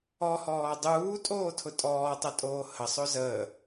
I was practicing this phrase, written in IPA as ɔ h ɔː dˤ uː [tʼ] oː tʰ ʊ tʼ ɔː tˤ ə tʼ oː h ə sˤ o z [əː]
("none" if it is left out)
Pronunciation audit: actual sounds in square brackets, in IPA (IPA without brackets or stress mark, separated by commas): tʼ, əː